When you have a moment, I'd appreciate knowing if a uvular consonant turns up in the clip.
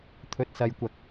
no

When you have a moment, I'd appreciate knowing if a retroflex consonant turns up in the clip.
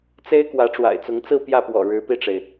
yes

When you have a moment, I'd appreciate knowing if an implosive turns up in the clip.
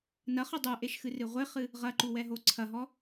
no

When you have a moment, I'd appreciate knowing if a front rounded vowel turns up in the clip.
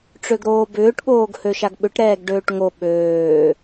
yes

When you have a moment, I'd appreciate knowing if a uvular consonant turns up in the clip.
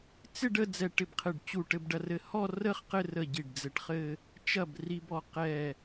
yes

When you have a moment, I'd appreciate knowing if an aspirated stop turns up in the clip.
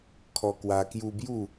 yes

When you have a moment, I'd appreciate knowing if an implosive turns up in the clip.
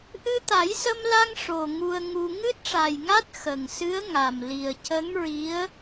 no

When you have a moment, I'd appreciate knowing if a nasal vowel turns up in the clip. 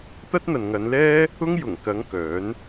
no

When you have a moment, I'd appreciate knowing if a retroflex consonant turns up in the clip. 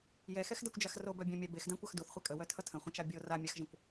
no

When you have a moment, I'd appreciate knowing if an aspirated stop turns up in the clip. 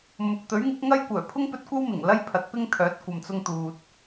yes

